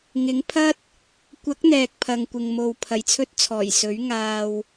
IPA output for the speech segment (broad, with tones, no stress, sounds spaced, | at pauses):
ŋ ɪ˨˥ ŋ pʰ ɐ˥ t̚ | kʷ ɐ˨˥ k̚ n̪ ɛː˨ k̚ pʰ ɐ˨ ŋ kʷ ɪ˨ ŋ m o˨ w pʰ ɐ˨˩ j t͡sʰ ɵ˧ t̚ t͡sʰ ɔː˨˩ j s ɵ˨˥ ɥ ŋ aː˧ w